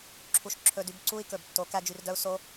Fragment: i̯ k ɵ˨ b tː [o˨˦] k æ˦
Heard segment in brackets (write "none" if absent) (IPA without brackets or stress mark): o˨˦